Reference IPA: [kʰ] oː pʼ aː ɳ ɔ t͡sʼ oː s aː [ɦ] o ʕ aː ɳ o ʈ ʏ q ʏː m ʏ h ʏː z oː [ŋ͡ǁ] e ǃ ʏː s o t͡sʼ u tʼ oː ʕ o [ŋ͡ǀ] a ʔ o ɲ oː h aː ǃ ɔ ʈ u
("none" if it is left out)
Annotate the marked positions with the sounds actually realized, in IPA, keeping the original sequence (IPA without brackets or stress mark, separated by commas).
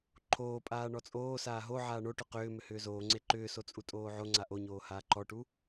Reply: ǃʰ, ɦ, ŋ͡ǀ, ŋ͡ǀ